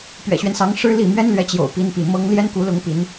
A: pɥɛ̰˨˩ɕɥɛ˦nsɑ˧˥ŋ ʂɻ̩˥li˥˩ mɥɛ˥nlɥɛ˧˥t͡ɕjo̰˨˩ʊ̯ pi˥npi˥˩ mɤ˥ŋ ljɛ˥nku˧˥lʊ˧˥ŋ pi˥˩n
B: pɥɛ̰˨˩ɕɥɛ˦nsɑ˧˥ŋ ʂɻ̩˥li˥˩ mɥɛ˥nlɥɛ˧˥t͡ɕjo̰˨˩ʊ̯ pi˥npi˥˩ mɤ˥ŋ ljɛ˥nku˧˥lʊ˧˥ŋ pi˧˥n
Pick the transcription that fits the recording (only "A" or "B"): B